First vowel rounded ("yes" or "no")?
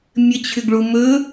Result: no